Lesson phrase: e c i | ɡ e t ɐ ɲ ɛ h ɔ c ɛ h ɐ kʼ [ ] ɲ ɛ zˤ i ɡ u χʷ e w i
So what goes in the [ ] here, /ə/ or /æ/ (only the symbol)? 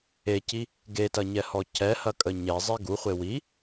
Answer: ə